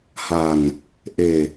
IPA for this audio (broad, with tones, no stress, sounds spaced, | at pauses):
h a˨˩ n | ʔ e˨˩